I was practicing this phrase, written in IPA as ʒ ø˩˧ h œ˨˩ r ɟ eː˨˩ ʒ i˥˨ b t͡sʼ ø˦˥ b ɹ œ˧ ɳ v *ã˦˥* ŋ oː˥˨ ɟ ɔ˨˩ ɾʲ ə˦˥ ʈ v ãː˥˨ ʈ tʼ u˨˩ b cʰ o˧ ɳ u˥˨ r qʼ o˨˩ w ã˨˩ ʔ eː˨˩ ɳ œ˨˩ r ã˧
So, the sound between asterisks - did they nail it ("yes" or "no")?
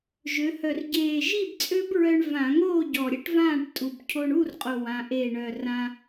no